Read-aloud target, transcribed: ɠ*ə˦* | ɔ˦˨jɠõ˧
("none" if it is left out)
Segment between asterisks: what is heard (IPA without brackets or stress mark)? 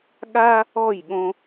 a˦